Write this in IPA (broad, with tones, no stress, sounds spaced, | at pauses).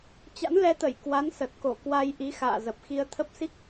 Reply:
t͡ɕ a̰˧˥ n l ɛ˧ t̪ ə˧˩ j k w a˨˦ n s ə˨˩ t̚ k o˧˩ k w a˧ j ʔ i˨˦ x a̰ː˧˨ z ə˨˩ p̚ x i˧ ə̯ t̪ʰ ə˦˥ p̚ s i˦˥ k̚